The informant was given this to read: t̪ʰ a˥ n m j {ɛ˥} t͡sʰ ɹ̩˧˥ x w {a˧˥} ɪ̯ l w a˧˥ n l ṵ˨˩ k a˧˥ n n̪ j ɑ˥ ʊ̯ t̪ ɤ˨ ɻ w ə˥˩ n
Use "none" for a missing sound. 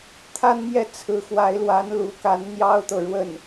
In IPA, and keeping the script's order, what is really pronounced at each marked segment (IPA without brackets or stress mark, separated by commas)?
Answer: ɛ˥˩, a˧˥